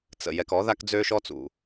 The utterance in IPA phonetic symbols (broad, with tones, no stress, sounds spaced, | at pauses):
t͡s ə̰˨ j ɛ˨ k ɔ˨˦ ð a˦ k d͡z øː˦ ʃ ɔ˦ t͡s ṵ˨